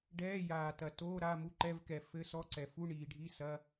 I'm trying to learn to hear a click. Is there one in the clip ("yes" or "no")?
yes